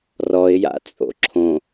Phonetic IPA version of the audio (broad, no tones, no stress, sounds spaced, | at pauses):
r ɔ ɪ̯ j a̰ t͡sʼ o̰ ǁʰ õ